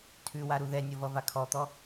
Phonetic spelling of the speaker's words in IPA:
tʰ ʉ w a ɾ u ð ɛ nʲ ʌ v ʌ v a kʰ ɔ t̪ ɔ

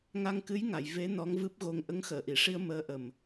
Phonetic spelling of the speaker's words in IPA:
ŋ a˧ ŋ k ɨ˧˥ j ŋ a˨˩˨ j v e˧˥ n ɔ˧˥ ŋ v ɨ˦˥ p̚ ɣ o˧ ŋ ʔ ə˧˥ ŋ x əː˨˩˨ ʔ i˨˩˨ ʂ i˧ ə̯ m əː˧˥ ʔ ə˨˩ m

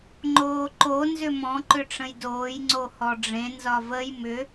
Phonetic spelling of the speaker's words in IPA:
ŋ͡ǃ oː ǃ o n z ʏ m ɔ̃ ǃ ʏ ʈ͡ʂ ə̃ j d oː j ŋ͡ǀ o h ɔ ɖ͡ʐ ẽ n z ɒ v ə j m ʏ

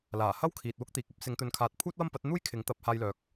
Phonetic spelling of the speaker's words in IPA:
l aː˨˩ h ɐ˥ w kʰ iː˨ t̚ w ʊ˥ k̚ t̪ iː˨ k̚ ɐ˥ p̚ s ɪ˨˧ ŋ t̪ ɵ˨ n kʰ aː˨ t̚ pʰ uː˥ t̚ w ɐ˥ m p ɐ˨˥ t̚ n̪ uː˥ j kʰ ɪ˨˥ ŋ t̪ ɐ˨˥ p̚ h aː˧ j l œː˨ k̚

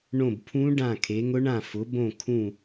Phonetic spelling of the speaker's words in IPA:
ɳ õ˦˨ b pʰ ũ˦˥ ɖ ã˦˨ kʰ e˨˦ ŋ ʊ˦˥ ɳ ã˦˨ f ʊ˨˦ b õ˦˨ kʰ ũ˦˨

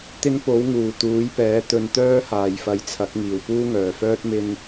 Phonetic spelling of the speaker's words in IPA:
t̪ ɪ˧ ŋ p o˨˥ w ŋ uː˨˩ t̪ uː˨˥ j p ɛː˨˥ t̪ ɵ˨˧ n t̪ œː˥ h aː˨ j f ɐ˧ j t͡sʰ ɐ˨˥ k̚ ŋ iː˨˩ w p uː˥ ŋ œː˨˩ f œː˥ t̚ m ɪ˧ ŋ

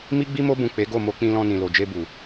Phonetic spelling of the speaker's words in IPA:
m i˦ ɡ͡b i˦ m o˦ b ũ˦˨ k͡p e˨˦ ɡ o˦˨ m o˧ k͡p ĩ˧ l ɔ̃˧ n ĩ˨ l o˨ d͡ʒ e˧ b u˨

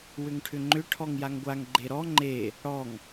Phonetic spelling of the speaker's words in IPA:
w ʏ ŋ ʈʰ ʏ ŋ͡ǃ ʏ ʈʰ ɔ ŋ j a ŋ ɡʷ a ŋ ɡ͡ǃ e ɾ ɔ ŋ͡ǃ e | ɽ ɔ ŋ

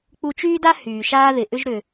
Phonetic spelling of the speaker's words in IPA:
k͡p u˧ t͡ʃ yː˥ d a˥ h yː˩ ʃ aː˥ ð ɪ˩ ʔ ʏ˥ ʒ ɾ ʏ˩

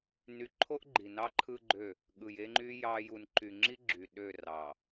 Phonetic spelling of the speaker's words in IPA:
n y˨ ǃʰ o˦ ʔ ɡ͡ǃ i˨ n ɑ˦ ǃʰ ɯ˦ ɡ͡ǃ ø˦˨ | ɠ ɯ˨ j e˦ ŋ͡ǃ y˦ j ɑ˦ j u˨ n ǃ y˨ ŋ͡ǁ i˦ ɡ͡ǁ y˨ ɗ ø˦˨ r ɑ˨

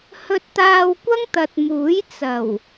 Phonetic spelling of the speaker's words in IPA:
h ɵ˧ t̚ t̪ aː˧ w kʷ ɐ˥ ŋ t̪ ɐ˨ t̚ m uː˨˥ j t͡s ɐ˨˩ w

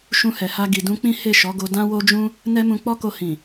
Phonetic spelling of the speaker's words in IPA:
ʃ ũ˧ h ɛ˨ h a˧ ɡ i˨ d ũ˧ k͡p ĩ˦ h e˦˨ ʃ ɔ˨˦ ɡ o˧ d ã˦ w o˦ d͡ʒ ũ˦ | n ɛ˦ m ũ˧ k͡p ɔ˦ k o˧ h ĩ˨

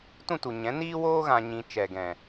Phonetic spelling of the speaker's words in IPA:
t ũ˦˨ t u˨ ɲ ɛ̃˨˦ n iː˦ w oː˦ ɣ ã˧ ɲ ĩ˧ t͡ʃ ɛ˨ ɡ ɛ̃˨

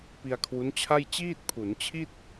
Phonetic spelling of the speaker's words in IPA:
p i˧ a̯ kʰ w u˦˥ n t͡ɕʰ a˥˩ j t͡ɕ iː˥˩ t̚ pʰ u˩˦ n t͡ɕʰ i˥˩ t̚

